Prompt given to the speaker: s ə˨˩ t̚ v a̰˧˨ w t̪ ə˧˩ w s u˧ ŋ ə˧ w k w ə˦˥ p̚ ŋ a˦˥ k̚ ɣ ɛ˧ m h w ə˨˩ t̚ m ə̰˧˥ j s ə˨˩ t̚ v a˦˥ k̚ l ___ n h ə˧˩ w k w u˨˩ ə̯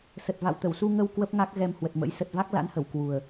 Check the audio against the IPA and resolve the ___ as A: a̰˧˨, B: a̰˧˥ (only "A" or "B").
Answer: B